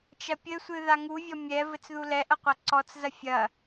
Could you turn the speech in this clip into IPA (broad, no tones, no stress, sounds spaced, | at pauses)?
t͡ʃ ɐ pʲ ɘ sʷ ɨ ð a ŋ u vʲ ɔ mʲ ɛ v ɘ t͡s ð u l ɛ ʔ ɐ qʷ a ǀ ɔ t͡s z ɐ fʲ ɐ